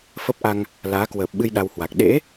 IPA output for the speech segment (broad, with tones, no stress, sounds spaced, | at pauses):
f ə˦˥ p̚ ʔ a˧ ŋ | l aː˨˦ k w əː˨˩ p̚ ɓ ɨ˧ j ɗ a˧ w h w a˨˩ k̚ ɗ ḛ˧˥